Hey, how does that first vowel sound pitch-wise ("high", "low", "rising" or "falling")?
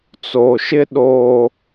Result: low